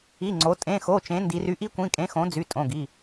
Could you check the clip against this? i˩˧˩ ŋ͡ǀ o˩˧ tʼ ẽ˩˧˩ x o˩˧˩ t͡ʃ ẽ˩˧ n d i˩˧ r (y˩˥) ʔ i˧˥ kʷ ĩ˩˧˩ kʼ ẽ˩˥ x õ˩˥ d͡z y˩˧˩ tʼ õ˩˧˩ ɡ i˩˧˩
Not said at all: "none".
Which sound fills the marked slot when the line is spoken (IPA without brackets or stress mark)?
y˩˥